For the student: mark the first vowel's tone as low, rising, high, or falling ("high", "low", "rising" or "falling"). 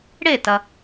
falling